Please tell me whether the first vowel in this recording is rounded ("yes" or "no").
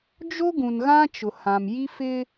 yes